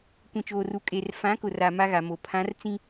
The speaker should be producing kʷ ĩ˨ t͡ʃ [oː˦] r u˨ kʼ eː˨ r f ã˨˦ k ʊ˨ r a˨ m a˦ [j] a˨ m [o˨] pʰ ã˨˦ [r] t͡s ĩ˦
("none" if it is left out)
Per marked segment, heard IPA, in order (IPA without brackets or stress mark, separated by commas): oː˨, ɣ, o˨, r